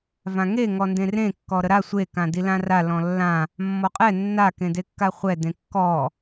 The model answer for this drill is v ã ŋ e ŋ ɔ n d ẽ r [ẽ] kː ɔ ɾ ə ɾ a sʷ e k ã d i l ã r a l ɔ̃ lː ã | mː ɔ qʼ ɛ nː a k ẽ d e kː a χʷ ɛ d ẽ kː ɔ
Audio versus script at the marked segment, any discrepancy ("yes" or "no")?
no